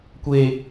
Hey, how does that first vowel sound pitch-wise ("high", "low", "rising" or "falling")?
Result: high